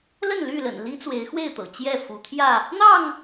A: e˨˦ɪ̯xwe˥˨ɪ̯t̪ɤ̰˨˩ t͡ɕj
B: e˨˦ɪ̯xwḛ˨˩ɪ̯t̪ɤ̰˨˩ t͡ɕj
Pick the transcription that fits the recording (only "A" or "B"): A